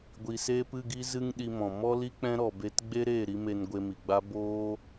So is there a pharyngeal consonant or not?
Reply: no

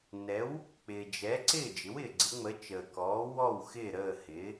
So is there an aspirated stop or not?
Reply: no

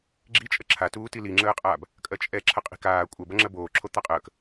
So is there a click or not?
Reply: yes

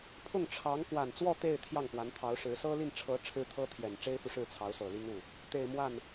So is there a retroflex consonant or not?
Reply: yes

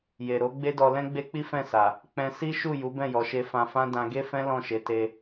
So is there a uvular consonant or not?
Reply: no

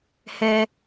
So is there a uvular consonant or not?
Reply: no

